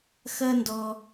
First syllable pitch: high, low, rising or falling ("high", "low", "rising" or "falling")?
high